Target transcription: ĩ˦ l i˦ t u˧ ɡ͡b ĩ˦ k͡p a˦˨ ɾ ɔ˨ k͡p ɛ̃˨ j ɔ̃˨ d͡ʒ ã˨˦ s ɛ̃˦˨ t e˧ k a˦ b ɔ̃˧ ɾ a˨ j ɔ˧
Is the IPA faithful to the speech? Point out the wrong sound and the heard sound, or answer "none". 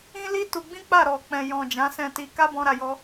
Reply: e˧ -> i˧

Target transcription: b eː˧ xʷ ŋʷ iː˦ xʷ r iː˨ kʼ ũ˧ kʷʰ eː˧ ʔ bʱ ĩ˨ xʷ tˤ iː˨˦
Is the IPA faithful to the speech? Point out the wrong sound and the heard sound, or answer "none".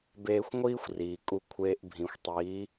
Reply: ũ˧ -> u˧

